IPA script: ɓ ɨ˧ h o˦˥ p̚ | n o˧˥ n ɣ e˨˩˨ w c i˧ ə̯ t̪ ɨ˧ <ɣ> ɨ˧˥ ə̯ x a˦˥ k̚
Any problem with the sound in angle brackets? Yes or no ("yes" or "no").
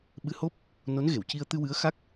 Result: yes